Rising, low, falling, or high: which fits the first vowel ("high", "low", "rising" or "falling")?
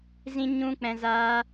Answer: high